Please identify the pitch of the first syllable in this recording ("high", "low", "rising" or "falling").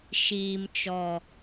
low